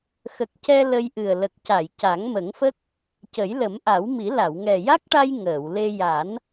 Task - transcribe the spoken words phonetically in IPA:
xə˨˩k̚cɛ˧ lə˧jʔɨ˨˩ə̯ lə˨˩k̚ca˨˩˨j ca˨˩˦ŋmə˨˩˦ŋfə˦˥k̚ | cə˨˩˦jlə˨˩˦mʔa˨˩˦wmi˨˩˦ la˨˩˨wŋɛ˨˩ja˦˥k̚ʈa˧j ŋəː˨˩˨w le˧ ja˨˩˦n

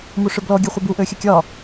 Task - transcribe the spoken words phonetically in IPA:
muʂøblɔ ɡʲɛχʷɘbu ʔøxʲɘkʲɒ

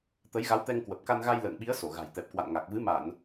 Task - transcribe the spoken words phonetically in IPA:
t̪ə˨˦jɣa˨˦wt̪ɛ˧ŋ kwə˨˩p̚ka˧nɣa˧j lə̰ː˧˨ŋɓi˨˦ə̯ so˧˩ɣa̤˨˩jt̪ɛ˨˩p̚ kwa̰˧˨nŋa˨˩k̚vɨ˨˦ ma˧˩˨n

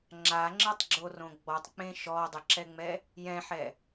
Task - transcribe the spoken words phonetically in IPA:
ŋ͡ǁaŋ͡ǁɘtˤɡ͡ǁorõ ɡ͡bɔtˤk͡pẽ ʃɔdˤəǁɛŋ͡mɛ | jɛ̃ħɛ

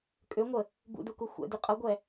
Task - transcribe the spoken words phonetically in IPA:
kʼøŋʷə | bṵduku xʷɛ̰dy qʼɤɡʷɛ

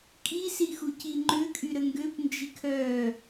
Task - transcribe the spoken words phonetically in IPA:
kʼi sixuciŋ͡ǃø kʼyɾəŋɡøp nd͡ʒikʰœ

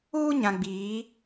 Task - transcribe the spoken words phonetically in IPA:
uː˦ɲã˨ɡ͡biː˨˦

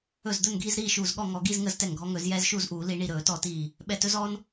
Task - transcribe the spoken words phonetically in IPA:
ɵ˧˩zd̪ɵ˥˨nɡʱi˥˨zɾiː˥˨ ʃuː˧˩zɠɔ˥˨ŋɔ˧˩˧ ɡi˥˨zŋə˧˩˧z tɛ˧˩ŋɡʱɔ˦ŋɵ˧˩˧zjɛː˦z ʃuː˥˨zʔuː˧˩˧ li˧˩˧ ɳi˧˩ɾɵː˧˩˧tɔ˧˩˧tiː˧˩ | ɓɛ˧˩tɵ˦zɔː˦n

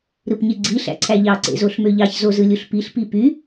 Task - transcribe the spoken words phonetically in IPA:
ɾɯpɲeɡ͡ǀi ɬæ̰ǀʰæʎɑ ǀḛzoɬmøʎɑç zozɯlʲuɬpiɬ pipy

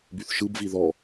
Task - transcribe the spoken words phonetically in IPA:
byθʃɯbvi ðɔ

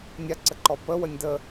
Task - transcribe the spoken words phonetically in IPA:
nʲaǀəǃɔ pə wənʲdə

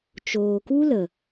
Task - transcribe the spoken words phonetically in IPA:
t͡ʃoː˨ku˦lə˨

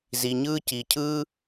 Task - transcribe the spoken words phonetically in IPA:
zi˩ɲɯː˥ ci˩cʰɯː˥

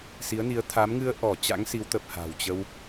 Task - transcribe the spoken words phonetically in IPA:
si˨˦ə̯ni˨˦ə̯ t̪ʰa˨˦mŋɨ˧ə̯ ʔɔ˧˩ t͡ɕa̰˧˥ŋsi˨˦wt̪ə˨˩p̚ha̤˨˩w t͡ɕə˧w

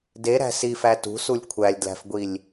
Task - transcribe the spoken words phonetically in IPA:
deɾæ̤ sifæ tṳsulʲ kʷʰælʲdlæ̤fɡʷilʲ

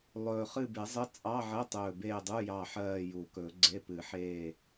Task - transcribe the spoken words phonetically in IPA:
lˠɵː˨˩χɨ˦˨be˨˩˦zˤə˧˥˧ t͡sʼɑ˧˥˧ʕə˧˥˧tˤɵː˨˩ beː˦˨dˤu˧˥˧ jɑ˦˨ħɜː˦˨ju˨˩˦kɵ˨˩˦ ɡ͡ǀe˧˥˧pɨ˨˩˦ħeː˦˨

